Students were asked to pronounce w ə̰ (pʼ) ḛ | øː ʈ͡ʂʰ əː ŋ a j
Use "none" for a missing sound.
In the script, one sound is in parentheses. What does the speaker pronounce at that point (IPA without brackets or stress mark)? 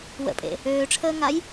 pʼ